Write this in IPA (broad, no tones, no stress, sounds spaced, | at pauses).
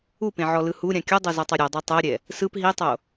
u p ẽ ʕ ɔ l ɯ h u ɾʲ ã kʲ u dˤ ɤ z ɔ tˤ o ɾʲ ɤ dˤ a tˤ ɛ ɐ̯ ɾʲ ɛ | s ɯ p ɦ i tˤ o